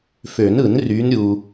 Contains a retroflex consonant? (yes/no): no